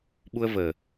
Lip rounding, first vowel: rounded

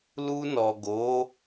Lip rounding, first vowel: rounded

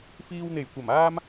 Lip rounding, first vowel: unrounded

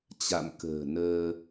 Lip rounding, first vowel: unrounded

